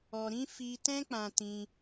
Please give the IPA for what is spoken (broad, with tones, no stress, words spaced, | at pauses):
ɔ˧ɾĩ˦ fi˦ tɛ̃˦k͡pã˧tĩ˧